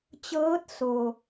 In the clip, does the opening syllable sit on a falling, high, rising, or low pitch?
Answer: rising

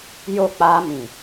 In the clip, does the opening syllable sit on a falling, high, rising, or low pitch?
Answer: falling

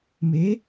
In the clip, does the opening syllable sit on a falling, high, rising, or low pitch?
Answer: rising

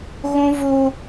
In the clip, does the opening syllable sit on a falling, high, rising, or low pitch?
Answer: high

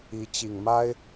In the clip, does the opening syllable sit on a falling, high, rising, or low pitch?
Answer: rising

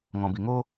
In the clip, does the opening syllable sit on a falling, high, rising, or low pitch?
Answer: low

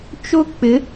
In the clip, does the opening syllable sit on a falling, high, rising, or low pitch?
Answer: falling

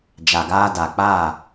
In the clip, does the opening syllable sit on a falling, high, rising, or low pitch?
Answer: low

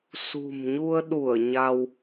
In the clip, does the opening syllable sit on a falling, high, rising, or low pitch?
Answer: low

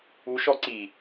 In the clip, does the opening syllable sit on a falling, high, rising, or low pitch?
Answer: rising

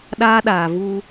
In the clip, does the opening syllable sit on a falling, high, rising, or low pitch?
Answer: high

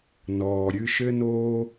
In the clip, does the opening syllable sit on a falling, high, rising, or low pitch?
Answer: low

